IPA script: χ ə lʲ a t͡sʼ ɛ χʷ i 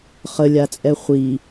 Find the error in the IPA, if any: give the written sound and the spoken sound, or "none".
none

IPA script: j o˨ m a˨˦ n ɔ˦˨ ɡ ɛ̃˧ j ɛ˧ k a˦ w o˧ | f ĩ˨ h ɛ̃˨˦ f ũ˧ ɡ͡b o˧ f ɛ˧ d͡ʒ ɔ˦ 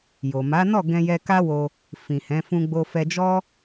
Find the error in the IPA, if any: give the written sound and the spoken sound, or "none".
none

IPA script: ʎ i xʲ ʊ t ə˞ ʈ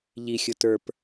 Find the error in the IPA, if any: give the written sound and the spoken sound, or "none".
ʈ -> p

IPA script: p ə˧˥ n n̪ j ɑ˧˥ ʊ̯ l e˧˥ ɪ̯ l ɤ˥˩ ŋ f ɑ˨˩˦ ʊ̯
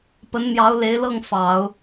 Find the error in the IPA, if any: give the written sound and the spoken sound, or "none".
none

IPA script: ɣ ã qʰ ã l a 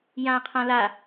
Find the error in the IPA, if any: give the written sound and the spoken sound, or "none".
ɣ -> j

